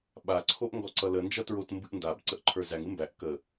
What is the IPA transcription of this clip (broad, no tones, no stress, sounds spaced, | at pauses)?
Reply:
ɓ a ǀʰ o ʔ ŋ ɡ ɔ ǀ ʌ l ə n d͡ʒ ʌ t ɹ o t m b ɨ ʔ n d a b ǀ ə ʔ ǃʰ ə˞ z æ ŋ ɨ m b æ ʔ k ə